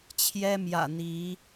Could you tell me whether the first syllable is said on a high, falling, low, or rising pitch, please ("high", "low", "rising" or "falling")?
high